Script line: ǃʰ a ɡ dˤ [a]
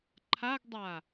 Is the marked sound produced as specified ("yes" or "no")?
yes